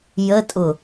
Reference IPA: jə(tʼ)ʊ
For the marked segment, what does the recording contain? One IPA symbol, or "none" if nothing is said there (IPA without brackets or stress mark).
tʼ